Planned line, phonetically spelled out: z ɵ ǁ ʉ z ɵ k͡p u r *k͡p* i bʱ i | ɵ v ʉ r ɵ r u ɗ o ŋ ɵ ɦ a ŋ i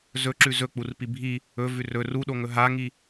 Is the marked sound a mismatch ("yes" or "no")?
yes